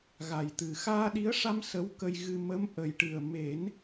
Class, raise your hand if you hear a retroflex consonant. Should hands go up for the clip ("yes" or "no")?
yes